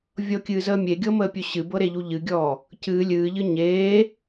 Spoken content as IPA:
vʲ ɤ kʲ ɨː z əː mʲ e ɡʲ ɤ m əː pʲ ɵ ɕ ɨ b ɤ ɾ e ʎ u ʎ ɨ ɡʲ ɔː | c ɨː lʲ ɨː ʎ ɨ ɲ eː

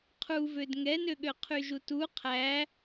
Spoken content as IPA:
qʰ u v ø d ŋ ɛ n ø ɠ ø qʰ y ʒ u t u qʰ æ

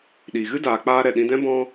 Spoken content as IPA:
ɗ iː˨ ɣ ɨ˦ d aː˨ k͡p aː˧ ɾ ɛ˨ ɗ ĩ˧ d ɛ̃˦ b ɔ̃˧

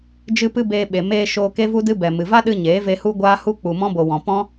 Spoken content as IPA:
d͡ʒ ɨ˦ p ɨ˦ b eː˧ ɓ e˨ m eː˧ ʃ oː˧ k e˦ v u˦ d ɨ˦ b ɛ˨ m ɨ˨ v a˦ ɗ ɨ˧ ɲ eː˨˦ v e˧ h u˦ ɡʷ aː˦ h u˦ k͡p u˨ m ɔ̃˦ b o˨ w ɔ̃˨ p ɔ̃˦

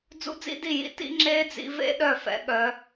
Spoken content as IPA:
d͡z ṵ˦˥ d͡z ḭ˦˥ d i˥˩ j ḭ˦˥ t ḭ˦˥ ŋ͡ǁ eː˦˥ d͡z ḭ˨˦ v ḛ˦˥ ɗ œ˥˩ f ɛ̰˨˦ ɠ œ˨˦

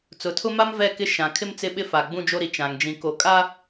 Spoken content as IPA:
t͡s ʊ˨ tʰ ʊ˦ m a˦ m v ɛ˦˨ k ɪ˦ ʃ ã˨ kʰ ɪ˦ m t͡s ɪ˦ ɓ ɪ˦ f a˨ ɡ͡b ũ˦ d͡ʒ o˦ ɾ i˨ t͡ʃ ã˨ ŋ d͡ʒ ĩ˨ k o˨ kʼ a˦

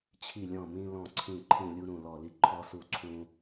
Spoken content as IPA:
t͡ɕʰ i˧˩ lʲ ɔ̃˧˩ m ĩ˧ l ɔ̃˧˩ ǀʰ ĩ˧˩ ǃʰ ĩ˧˩ lʲ u˧ ɾ ũ˧˩ l ɔ˧˩ l i˧ ǃʰ ɔ˧ s u˧˩ ǀʰ ũ˧

